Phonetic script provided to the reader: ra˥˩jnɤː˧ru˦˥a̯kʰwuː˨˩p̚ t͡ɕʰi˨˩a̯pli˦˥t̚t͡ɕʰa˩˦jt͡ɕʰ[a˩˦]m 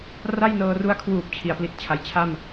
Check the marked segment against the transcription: incorrect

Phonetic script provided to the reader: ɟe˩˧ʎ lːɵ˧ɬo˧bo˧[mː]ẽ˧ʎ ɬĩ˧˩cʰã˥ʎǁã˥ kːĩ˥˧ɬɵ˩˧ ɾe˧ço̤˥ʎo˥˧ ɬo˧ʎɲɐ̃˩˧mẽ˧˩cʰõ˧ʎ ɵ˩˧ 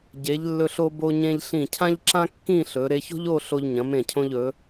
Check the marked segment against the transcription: incorrect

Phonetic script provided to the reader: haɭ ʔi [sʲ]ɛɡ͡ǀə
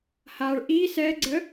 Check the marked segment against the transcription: incorrect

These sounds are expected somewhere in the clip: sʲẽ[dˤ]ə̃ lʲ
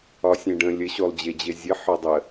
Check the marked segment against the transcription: incorrect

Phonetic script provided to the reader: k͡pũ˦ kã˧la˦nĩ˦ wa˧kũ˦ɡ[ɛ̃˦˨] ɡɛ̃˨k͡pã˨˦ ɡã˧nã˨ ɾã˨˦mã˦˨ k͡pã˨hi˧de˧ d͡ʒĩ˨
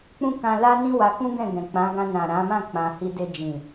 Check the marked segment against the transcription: correct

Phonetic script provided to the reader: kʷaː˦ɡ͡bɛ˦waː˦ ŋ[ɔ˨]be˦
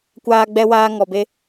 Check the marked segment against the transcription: incorrect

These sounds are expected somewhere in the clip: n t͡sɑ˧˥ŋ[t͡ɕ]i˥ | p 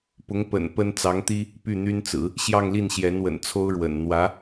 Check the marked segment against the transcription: incorrect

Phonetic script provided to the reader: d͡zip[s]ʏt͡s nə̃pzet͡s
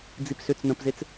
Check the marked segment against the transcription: correct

